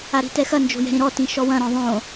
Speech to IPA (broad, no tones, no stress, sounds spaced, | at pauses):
a ɾ i̤ t ɛ x ɐ n d͡ʒ o̤ j ɛ̤ ɾ ĩ ɾ ɔ t ĩ ʃ ɔ w ɐ̃ ɾ ɔ̃ ðˤ õ